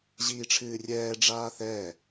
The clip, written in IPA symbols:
ʑ iː ʈ͡ʂʰ ɨː rʲ ɛː ɖ͡ʐ aː θ ɛː

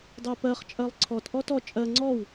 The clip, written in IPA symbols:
dˤ ɜ p ɜ χ t͡ʃʼ ɜ lˠ ǀʰ ɔ t ʔ ɔ t ɔ t͡ʃʼ ɜ ŋ͡ǀ ɔ w

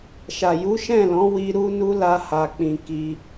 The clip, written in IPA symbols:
ʃ a˨ j u˨˦ ʃ ɛ̃˦˨ l ɔ̃˨˦ w i˦ ɾ u˦ n u˦ l a˧ h a˨ k͡p ĩ˨ k i˧

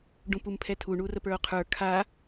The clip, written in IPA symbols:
ɖ ũ p u m pʰ ɛ tʰ u ɳ u r ə p ə˞ o̯ qʰ ə˞ kʰ a

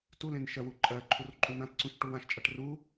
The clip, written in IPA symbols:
t u l ẽ n ʃ ɜ w u ǃʼ ɜ ǃʰ u r ǃʼ u n ã t ǀ ũ ʃ ʈ u w ã ʃ t͡ʃʼ a ʈ r u

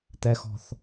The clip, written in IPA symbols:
t̪ ɛ x ɔ̤ θ

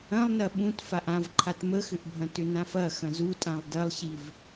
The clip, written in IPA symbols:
ɐ̃ lˠ n ɐ ɓ ũ t f a ʔ ã v ǃʰ a t m ə x ʏ ʔ bʱ ɐ̃ t ʏ n ã f ɐ x ɐ̃ z u tʼ ã lˠ d ɐ lˠ ɕ i v

